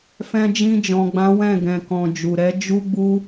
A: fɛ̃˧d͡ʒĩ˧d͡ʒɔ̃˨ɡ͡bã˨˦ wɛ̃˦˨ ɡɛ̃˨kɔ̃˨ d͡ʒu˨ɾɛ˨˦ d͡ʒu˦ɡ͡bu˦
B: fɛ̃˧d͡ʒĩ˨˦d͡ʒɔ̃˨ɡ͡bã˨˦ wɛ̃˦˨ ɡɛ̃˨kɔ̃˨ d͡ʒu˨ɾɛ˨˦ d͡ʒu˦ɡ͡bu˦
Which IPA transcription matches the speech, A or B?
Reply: A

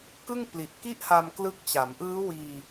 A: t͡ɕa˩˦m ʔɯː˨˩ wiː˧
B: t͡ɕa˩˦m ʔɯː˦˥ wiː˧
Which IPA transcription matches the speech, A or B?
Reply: B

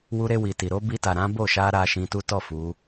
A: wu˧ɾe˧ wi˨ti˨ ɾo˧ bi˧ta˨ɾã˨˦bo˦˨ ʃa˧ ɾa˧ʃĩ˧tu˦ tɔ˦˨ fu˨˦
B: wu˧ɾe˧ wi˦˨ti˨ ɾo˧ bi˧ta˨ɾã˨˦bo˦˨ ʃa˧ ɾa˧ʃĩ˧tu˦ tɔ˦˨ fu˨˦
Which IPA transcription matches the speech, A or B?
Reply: A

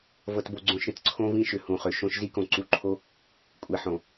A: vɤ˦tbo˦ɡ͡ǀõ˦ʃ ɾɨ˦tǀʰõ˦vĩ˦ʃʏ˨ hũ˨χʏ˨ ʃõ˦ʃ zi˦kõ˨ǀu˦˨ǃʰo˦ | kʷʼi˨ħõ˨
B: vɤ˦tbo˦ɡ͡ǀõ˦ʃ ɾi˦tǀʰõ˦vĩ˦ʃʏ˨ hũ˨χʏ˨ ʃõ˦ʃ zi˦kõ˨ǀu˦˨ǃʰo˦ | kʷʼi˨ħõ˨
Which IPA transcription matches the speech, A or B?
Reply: A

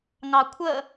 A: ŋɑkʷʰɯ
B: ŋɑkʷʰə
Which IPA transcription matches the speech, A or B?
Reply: B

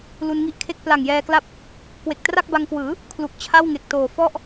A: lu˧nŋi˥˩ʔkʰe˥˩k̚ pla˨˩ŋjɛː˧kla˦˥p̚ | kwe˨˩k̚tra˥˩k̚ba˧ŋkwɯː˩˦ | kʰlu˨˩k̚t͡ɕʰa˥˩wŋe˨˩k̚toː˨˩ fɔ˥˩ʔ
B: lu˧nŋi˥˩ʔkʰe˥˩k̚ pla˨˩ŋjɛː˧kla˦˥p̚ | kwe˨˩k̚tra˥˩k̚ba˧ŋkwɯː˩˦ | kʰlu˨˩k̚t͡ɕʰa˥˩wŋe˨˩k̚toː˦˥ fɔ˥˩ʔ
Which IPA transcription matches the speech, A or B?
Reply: A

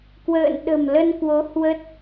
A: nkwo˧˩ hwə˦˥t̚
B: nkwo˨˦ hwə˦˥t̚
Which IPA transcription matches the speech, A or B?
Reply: B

